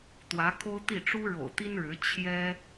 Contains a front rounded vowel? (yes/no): no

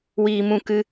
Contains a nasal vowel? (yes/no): yes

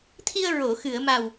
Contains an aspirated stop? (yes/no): yes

